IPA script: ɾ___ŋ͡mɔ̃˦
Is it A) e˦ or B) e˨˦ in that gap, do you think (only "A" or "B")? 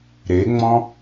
B